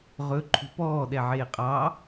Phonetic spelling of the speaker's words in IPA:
ʁ ɵ ǃʰ ṳ p ɔː ɗ ɛ ʕ eː qʼ ɑ

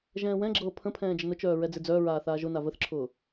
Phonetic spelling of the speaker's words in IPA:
ʒ ɛ̃ː w ɛ̃ ɡ͡ǁ ɤː pʰ ə̃ pʰ ɛ̃ː d͡ʒ ə n ʊ t͡ʃ œː ɹ ɛ d͡z e d͡z œː ɹ aː θ aː ʒ ʊ n a v ə θ ǁʰ ʊː

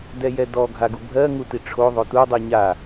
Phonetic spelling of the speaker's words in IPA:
d ɛ j ɛ d ɔ ɡʱ a ɡ u bʱ ɜ ŋ u t i ʈ͡ʂʰ o ðˤ o t u dˤ i ɲ a

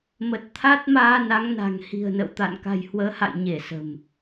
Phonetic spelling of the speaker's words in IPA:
m ə˨˩ t̚ t̪ʰ a˦˥ t̚ m aː˧ n a˨˦ ŋ n a̤˨˩ ŋ h i̤˨˩ ə̯ n ə̰˧˨ w t̪ a̰˧˨ n k a̤˨˩ j h w əː˨˦ h a̰˧˨ j ɲ e˧˩ s ə̤˨˩ m

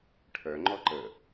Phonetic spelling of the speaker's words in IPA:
ʈʰ œ ŋ͡ǃ ɔ ǃ ə

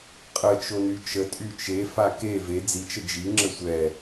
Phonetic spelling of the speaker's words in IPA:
qʼ ə t͡ʃ o n y t͡ʃ ə tʼ y t͡ʃ e f a k e v e d͡z i t͡ʃ ə d͡ʒ i ŋ͡ǁ ə sʷ ɛ

